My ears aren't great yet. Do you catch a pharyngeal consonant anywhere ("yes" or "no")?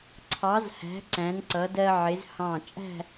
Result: yes